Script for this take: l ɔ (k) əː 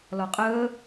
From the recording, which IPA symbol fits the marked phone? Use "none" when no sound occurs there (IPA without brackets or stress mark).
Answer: qʼ